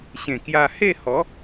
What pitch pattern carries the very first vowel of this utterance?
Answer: low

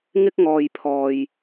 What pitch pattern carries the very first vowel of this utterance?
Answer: high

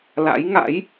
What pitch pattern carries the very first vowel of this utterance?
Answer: rising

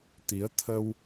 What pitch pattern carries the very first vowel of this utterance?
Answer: rising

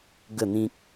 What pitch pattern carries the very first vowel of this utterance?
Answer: falling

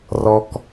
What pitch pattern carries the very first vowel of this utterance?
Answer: low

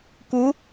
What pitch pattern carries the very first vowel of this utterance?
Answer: rising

